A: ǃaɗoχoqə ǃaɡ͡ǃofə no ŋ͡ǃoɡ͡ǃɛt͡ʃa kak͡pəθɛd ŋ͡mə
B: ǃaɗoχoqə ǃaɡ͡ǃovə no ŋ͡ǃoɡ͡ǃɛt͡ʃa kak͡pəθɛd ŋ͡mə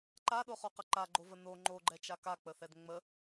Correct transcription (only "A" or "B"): B